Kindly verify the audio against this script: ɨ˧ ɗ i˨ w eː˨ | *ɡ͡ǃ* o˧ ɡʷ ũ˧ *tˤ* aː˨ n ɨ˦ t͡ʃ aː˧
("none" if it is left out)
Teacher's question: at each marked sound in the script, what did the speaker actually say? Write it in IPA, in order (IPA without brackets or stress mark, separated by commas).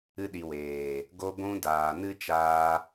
ɡ, d